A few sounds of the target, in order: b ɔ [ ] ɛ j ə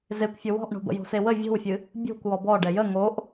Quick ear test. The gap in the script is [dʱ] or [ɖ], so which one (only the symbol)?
ɖ